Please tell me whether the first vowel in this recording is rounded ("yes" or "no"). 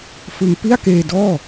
no